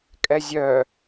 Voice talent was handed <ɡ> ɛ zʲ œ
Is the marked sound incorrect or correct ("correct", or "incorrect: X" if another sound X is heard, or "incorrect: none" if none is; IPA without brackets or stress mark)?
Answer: incorrect: kʼ